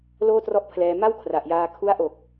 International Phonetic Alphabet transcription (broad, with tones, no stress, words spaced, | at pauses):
loː˥˩trɔ˥˩ʔpʰlɛː˧ ma˥˩w kʰra˨˩ʔjaː˧ kʰu˦˥a̯ʔo˨˩k̚